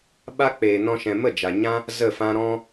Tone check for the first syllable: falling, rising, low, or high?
high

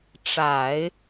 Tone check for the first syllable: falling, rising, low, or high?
low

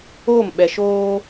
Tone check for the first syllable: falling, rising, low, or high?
falling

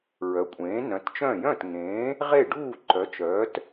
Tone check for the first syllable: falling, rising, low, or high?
rising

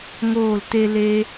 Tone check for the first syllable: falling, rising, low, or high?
falling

